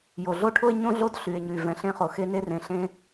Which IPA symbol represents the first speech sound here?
j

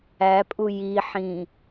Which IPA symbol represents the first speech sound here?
æ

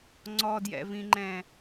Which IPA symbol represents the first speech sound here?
ŋ͡ǀ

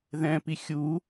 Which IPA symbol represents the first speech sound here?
ð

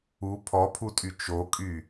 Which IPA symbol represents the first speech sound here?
u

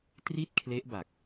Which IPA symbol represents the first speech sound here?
t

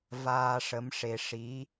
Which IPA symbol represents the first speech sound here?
v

